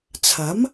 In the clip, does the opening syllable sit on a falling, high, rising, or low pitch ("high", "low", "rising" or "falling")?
rising